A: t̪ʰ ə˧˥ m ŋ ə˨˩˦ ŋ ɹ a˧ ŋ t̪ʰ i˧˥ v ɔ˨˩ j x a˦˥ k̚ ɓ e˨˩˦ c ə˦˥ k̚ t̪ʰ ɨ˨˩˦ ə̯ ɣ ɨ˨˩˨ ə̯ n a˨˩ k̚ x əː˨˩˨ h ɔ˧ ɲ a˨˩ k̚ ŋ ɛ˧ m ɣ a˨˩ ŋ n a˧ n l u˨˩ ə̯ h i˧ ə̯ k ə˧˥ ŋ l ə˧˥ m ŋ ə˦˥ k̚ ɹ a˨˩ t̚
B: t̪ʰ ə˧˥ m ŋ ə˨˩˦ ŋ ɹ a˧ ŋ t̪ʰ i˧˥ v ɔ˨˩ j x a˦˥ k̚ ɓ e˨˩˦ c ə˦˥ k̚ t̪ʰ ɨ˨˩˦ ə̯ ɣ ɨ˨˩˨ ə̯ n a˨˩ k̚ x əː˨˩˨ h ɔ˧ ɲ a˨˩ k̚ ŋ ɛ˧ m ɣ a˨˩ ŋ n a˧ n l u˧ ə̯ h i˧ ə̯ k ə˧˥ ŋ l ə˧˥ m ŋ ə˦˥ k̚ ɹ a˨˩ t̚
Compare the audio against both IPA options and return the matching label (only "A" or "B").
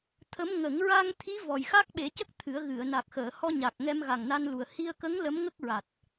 A